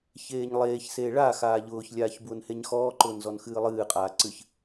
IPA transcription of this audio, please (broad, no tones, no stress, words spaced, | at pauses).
çeːɲlˠeːçseː ɭa xaːʎʊːçlʲaːç bwʊnheɲxɔːǃʊːn zɔnxɨːlˠɨːqʼaː ǀɨç